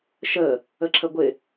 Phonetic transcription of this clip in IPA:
ʃə | əǁʰəɡʷɪ

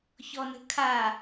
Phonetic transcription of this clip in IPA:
çɔnə̤kʰa

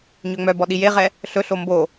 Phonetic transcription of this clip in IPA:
ɲøŋ͡mœbɔ ɗijeʁɛ | ɬɵɬo mbo

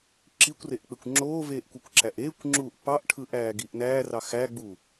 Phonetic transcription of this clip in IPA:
ǁikʷreʔk͡pekʷ ŋ͡ǁoːveːʔkʷekʷǁæʔ eːkʷŋ͡ǁuːʔ pɑʔʈʰɯʔæːɡiʔ næːrɑ xæɡ͡bu

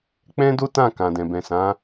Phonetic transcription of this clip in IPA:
k͡pɛ̃˦do˦tã˦˨ kã˨dɛ̃˨ bɛ̃˨sã˨˦

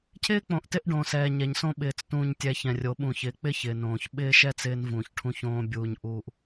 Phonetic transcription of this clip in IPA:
cʰɪː˦k͡põ˨ʔtɪ˦ʔ ɖõ˨sɛː˨ ɲɛ˨ɲsõ˦ ɓɪː˨t͡s tũː˨ɲtʲɛ˨ çɛ̃˨rʲo˨˦ ɓũ˨çɪː˨˦k͡pɪː˦ç ɪː˨nõː˨ç ɓɪː˦ʃɛː˦t͡s ɪː˦nvũː˨çʈʰũ˦˨çõː˦ bʲuː˨ɲʔuː˨ʔ

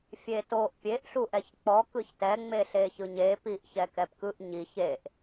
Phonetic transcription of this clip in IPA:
fʲetoʔ pʲeʔ ɬuʔɛçk͡pɔ kɯçtɛ ŋ͡meɬeçɯɲe piʔçɛkɛpkɯʔ ɲiç eʔ

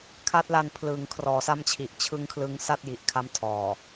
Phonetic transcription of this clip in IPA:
kʰa˦˥t̚la˧n pʰlɯː˨˩ŋkʰrɔː˩˦sa˦˥mt͡ɕʰi˨˩ʔ t͡ɕʰɯ˦˥ŋkʰlɯ˧ŋsa˥˩t̚ ji˨˩ʔkʰa˦˥mtʰɔː˨˩

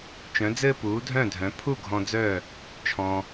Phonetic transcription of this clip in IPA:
t͡ʃœ̃˩˥d͡zɘː˥puː˩˥ dʱœ̃ː˥˩dʱœ̃˩˥ pʰu˥˩ ɡʱɔ̃˧d͡zœː˥˩ | t͡ʃʰɔ̃˩

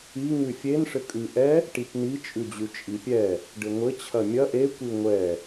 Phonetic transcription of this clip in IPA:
i ŋʉfʲen ʂɘkʼʉ ʔɛ | ʈipni t͡ʃʼʉd͡ʑʉt͡ʃʼipʲɛ | ɖɘŋʷɘ t͡ɕʰɐmʲɐ ʔe kʷiŋʷɛ

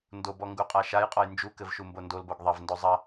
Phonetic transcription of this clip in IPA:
ndobɔ ŋɡuqʼaʃajqʼɔj nd͡ʒukɘv ʃumbondolboɡ ðˤɐvndo zˤɐ

